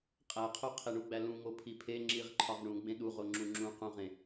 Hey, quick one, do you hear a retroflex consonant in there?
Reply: yes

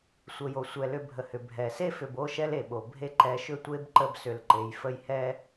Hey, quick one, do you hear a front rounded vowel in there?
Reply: yes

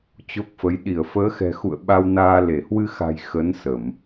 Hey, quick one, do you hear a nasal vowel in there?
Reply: no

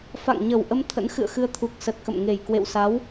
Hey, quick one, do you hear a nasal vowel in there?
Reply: no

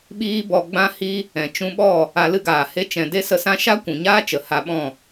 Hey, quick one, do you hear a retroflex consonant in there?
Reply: no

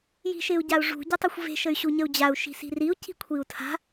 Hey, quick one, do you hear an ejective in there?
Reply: no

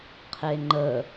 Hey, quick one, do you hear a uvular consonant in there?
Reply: yes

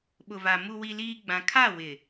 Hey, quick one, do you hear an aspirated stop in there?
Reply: yes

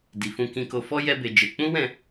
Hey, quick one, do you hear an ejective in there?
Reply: no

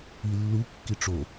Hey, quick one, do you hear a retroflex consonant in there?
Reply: yes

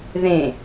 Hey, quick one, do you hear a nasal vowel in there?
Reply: yes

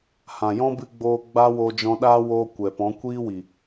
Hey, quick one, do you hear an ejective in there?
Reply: no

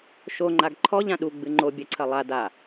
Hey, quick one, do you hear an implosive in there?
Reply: yes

